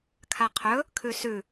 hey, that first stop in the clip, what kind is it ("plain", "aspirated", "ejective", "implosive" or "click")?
aspirated